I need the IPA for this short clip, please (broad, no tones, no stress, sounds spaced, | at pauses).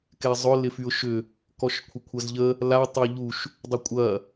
k ɛ zˤ ʊ l ɪ f y ʊ̯ ʃ ʏ | k ɔ ʃ kʷʰ ɪ kʷʰ ɐ z ʎ ə | l a tˤ ɪ ʊ̯ ʎ u ʃ | dˤ ʊ kʷʼ ɐ